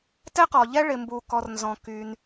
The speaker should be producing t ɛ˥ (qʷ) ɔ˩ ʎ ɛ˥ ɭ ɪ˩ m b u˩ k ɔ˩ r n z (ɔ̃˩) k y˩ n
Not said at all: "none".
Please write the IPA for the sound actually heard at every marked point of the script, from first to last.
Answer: q, ɔ̃˩

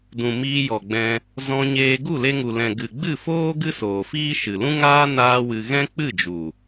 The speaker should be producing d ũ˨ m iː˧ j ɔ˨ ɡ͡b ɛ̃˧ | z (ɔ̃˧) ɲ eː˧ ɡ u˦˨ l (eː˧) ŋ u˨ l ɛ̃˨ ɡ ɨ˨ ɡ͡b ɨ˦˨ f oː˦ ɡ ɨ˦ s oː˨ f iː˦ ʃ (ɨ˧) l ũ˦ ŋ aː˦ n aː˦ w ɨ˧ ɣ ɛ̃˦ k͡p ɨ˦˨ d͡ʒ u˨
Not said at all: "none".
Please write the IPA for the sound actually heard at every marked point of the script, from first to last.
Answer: ɔ̃˧, e˧, ɨ˨

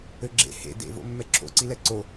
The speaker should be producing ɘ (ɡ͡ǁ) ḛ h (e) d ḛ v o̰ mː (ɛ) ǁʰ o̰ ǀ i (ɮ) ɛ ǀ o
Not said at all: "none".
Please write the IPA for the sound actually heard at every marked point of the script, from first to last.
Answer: ɡ͡ǁ, ḛ, ɛ, l

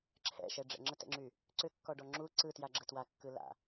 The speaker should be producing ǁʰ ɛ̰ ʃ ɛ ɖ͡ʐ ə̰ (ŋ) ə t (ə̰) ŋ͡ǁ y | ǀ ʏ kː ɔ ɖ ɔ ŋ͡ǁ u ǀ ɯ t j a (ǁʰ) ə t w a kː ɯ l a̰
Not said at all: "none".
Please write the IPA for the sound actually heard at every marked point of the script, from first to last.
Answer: ŋ͡ǁ, ɛ̰, ɡ͡ǁ

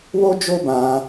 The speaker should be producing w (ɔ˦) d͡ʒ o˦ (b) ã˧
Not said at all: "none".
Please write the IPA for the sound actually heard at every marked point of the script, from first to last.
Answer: o˦, b

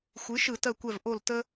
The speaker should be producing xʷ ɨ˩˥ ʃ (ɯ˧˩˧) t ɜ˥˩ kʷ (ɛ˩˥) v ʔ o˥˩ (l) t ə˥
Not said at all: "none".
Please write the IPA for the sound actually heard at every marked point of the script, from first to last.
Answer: ɯ˧˩˧, ɛ˥˩, l

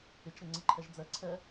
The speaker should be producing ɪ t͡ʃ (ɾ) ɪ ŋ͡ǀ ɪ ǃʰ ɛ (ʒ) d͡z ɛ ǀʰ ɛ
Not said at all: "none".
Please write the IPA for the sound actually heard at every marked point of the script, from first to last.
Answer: ɾ, ʒ

